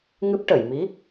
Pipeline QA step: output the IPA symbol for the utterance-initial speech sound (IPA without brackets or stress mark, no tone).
ŋ